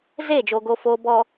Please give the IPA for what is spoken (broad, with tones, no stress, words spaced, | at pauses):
zeː˦˨d͡ʒoː˨ ɡo˨foː˨bɔ˨